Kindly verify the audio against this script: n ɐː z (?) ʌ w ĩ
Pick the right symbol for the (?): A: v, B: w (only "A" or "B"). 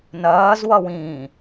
B